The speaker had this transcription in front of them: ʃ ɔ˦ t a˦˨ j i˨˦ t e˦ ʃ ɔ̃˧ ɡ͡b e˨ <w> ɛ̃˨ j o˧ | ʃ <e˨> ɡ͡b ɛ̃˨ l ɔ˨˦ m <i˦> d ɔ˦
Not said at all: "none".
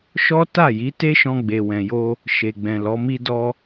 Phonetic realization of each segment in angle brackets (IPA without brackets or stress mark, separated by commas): w, e˨, i˦